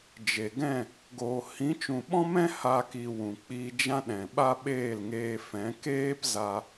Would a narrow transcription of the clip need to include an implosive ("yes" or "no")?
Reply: yes